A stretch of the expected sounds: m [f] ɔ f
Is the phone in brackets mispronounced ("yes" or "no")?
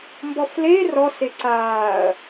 yes